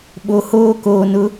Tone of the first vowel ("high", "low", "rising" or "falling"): low